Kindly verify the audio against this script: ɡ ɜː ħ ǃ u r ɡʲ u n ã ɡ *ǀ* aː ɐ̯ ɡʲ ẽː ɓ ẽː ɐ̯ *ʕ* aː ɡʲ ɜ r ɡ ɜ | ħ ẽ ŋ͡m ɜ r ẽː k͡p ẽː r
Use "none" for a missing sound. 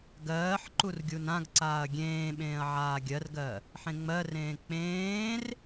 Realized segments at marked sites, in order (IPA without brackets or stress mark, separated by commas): ǀ, ʕ